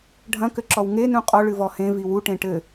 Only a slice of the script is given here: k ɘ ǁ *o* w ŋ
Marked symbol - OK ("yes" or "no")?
no